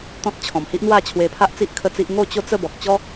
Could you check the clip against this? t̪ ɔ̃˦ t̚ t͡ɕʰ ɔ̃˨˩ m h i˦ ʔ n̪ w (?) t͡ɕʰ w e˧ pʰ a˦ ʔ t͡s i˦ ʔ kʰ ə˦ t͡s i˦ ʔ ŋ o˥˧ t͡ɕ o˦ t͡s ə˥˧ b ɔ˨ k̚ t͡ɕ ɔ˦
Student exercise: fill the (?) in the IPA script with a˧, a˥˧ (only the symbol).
a˥˧